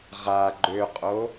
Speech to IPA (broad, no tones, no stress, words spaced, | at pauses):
ʁa ɡ͡ǃøqʼo